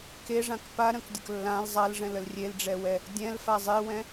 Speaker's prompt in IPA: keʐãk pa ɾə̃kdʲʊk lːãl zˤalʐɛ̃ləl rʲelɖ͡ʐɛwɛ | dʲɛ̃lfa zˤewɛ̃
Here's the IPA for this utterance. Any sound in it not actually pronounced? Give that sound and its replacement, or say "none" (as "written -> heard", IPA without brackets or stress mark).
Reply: none